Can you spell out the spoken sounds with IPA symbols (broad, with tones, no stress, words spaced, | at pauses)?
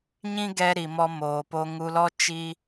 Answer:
ɲĩ˦ɡɛ˧ ɾi˨mɔ˧ moː˨po˧ŋu˧lɔ˦ t͡ʃi˦